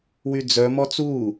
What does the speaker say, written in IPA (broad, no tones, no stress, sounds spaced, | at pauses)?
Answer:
w y d͡z œ m ɔ t͡s uː